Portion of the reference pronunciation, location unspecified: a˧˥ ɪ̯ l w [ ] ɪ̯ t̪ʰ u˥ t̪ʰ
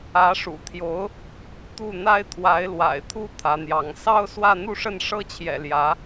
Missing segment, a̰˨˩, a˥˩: a̰˨˩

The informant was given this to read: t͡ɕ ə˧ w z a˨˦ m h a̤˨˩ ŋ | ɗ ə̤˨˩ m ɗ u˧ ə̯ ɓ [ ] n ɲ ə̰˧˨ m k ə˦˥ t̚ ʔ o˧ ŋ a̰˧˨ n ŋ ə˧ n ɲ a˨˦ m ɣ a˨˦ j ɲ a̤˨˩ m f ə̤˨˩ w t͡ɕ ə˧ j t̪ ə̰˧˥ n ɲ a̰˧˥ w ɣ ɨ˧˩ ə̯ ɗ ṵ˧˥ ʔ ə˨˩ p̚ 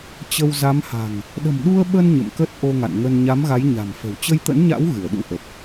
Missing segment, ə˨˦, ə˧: ə˧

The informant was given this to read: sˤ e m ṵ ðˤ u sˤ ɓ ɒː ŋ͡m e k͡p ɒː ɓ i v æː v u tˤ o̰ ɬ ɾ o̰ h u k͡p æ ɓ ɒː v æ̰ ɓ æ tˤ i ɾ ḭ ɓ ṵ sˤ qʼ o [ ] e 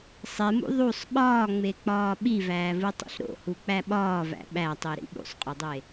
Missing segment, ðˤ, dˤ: dˤ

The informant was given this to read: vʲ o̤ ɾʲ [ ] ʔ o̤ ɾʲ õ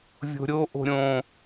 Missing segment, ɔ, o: o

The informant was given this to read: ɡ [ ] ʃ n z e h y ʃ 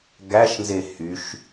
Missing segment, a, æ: æ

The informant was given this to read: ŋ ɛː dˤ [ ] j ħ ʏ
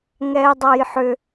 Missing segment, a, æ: a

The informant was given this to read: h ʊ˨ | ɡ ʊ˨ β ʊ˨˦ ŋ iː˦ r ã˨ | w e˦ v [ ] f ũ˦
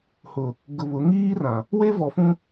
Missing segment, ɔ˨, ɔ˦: ɔ˨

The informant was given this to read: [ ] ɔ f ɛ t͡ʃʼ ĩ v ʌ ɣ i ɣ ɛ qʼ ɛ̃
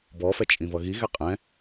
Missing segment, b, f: b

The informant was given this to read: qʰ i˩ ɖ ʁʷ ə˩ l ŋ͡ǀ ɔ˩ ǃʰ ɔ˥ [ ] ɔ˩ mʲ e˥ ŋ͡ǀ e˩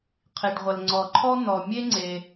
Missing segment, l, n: n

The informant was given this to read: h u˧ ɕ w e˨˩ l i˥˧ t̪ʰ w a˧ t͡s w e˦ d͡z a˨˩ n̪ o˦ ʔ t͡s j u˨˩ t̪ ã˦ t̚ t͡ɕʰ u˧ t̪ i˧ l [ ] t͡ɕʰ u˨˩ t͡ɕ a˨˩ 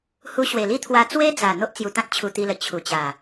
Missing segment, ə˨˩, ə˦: ə˨˩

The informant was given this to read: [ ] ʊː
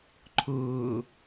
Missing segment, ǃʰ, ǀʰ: ǃʰ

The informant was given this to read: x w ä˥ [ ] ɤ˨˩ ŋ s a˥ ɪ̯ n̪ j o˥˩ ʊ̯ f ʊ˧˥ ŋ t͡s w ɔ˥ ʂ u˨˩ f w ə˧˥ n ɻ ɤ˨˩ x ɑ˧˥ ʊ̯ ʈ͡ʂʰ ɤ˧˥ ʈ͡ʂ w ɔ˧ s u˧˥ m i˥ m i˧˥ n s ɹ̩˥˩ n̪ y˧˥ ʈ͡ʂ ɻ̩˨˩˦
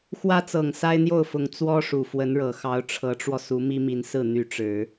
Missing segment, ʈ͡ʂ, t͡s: t͡s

